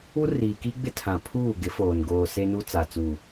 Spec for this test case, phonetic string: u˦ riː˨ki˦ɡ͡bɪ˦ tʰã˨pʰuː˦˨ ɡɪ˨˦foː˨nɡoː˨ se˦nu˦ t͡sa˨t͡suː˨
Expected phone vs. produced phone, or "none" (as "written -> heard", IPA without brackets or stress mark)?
none